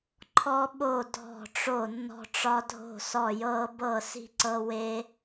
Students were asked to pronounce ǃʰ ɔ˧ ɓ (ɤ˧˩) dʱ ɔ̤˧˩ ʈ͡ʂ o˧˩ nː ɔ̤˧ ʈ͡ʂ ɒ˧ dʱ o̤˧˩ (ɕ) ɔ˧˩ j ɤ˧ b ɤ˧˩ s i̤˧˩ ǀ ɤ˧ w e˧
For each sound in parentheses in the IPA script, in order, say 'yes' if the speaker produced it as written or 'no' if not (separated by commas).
no, no